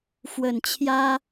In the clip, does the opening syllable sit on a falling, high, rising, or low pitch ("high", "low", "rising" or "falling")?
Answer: low